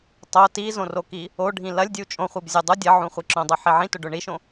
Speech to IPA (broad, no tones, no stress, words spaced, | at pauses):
tˤo tizõroki | oɖʱĩ lɐlʲdʲu t͡ʃʼõχʷibzʲo dˤu dʲɐʕũχʷi ǁõdˤuħi ʕĩtɵɖɵ ɳiʃõ